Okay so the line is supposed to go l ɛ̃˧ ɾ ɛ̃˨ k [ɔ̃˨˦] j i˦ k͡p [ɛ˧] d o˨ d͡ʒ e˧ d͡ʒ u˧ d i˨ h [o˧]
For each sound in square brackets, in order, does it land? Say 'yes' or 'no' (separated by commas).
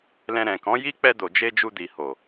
yes, yes, no